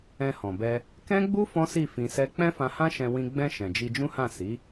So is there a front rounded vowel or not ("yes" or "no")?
no